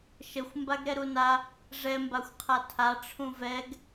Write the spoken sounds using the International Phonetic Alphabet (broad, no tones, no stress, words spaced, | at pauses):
ʃəxʷ mbaɡɾɛɾuna | ʐɛ mbaxʷqʰatʰa ʈ͡ʂʰũvɛɡ